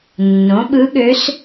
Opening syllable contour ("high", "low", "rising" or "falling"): rising